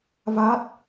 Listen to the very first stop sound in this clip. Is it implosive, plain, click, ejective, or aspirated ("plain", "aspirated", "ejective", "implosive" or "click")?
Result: plain